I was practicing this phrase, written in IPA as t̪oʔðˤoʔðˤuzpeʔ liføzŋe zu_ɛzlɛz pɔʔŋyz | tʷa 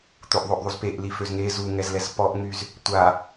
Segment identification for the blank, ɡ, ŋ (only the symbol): ŋ